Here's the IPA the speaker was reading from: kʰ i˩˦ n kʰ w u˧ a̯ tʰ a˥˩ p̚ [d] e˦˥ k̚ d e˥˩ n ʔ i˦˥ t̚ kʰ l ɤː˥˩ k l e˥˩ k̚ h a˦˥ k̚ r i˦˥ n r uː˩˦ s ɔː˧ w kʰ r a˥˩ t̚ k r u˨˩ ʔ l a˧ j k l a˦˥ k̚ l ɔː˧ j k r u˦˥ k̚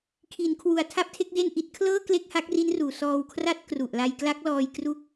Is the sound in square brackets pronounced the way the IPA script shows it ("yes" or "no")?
no